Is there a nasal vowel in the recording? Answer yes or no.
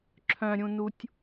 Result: yes